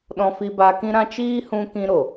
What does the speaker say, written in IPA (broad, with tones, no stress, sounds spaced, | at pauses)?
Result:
ɗ ɔ̃˧ f i˧ b a˧ k ĩ˦ ɾ ã˦ t͡ʃ iː˦ h ũ˧ k ĩ˧ ɾ o˨